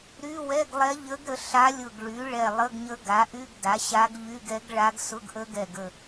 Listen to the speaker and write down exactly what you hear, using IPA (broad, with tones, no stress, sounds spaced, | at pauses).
ɾ y˧˥˧ w ɛ˧˥˧ ɡ lˠ ɛ˧˥ ʎ ə˧˥ ɡ ɾ ə˩˥ ɬ a˧˥ lʲ ʊ˧˩ ɡ ɭ y˩˥ ɭ ɛ˧˩ lˠ ə˧˥˧ ɡ ɲ ə˧˥ ɡ a˩˥ ʔ y˧˥˧ ɡ d a˩˥ ɕ a˧˥ ɡ ʎ y˧˥˧ ɡ ɛ˧˥ ɡ ɭ a˧˥ ɡ s ʊ˧˥˧ ɡ ʔ ə˧˥ ɡ ɛ˧˩ ɡ ə˧˩